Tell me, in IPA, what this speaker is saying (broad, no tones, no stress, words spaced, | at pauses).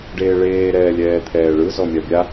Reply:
ɖeːɭeː ɾɛːlʲɛːt̪ʰɛːɭɯ zɔmʲabʲa